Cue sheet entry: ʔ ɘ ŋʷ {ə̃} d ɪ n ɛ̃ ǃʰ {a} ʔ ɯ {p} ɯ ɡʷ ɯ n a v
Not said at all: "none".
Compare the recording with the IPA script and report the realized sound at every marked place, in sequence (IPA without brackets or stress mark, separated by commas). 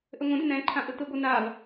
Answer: ə̃, ã, t